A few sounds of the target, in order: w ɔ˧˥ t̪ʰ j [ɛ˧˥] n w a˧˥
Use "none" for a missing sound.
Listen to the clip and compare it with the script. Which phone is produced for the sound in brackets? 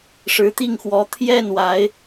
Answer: ɛ˥˩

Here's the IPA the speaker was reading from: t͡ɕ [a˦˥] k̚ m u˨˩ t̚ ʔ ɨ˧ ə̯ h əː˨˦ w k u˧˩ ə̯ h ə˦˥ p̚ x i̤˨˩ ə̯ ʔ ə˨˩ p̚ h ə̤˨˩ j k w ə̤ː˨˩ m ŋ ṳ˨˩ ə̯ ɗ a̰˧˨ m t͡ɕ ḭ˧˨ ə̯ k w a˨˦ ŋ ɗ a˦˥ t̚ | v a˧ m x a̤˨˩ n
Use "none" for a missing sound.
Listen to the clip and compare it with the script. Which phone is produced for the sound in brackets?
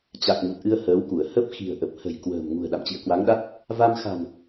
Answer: a˨˩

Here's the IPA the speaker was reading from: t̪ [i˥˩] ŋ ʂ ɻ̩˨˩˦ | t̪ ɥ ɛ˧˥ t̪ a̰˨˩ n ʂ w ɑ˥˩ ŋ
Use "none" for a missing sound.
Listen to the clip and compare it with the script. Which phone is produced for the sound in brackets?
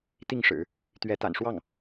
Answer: i˥˩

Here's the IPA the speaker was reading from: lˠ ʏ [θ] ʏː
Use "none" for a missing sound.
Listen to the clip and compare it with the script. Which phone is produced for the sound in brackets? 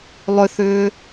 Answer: θ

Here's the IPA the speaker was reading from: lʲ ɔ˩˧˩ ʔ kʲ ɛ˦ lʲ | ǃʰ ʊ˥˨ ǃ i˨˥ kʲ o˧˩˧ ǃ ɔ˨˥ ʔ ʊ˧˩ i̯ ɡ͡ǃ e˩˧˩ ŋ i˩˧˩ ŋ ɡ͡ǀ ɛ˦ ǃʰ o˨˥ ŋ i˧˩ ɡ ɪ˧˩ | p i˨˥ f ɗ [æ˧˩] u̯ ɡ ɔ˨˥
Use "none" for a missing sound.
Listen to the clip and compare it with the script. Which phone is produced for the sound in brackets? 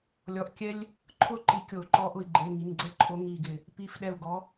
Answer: ɛ˧˩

